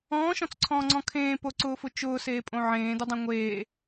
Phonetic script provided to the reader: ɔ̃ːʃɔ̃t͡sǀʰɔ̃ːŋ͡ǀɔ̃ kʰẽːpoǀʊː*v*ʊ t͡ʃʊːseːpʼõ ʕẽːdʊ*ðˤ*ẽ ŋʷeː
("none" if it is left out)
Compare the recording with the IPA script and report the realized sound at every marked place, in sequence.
f, dˤ

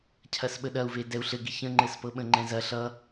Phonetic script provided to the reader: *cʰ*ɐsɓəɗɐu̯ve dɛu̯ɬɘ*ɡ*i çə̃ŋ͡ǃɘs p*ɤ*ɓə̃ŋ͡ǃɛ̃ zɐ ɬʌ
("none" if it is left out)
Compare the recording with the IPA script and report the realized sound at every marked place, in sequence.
cʰ, ɡ, ɤ

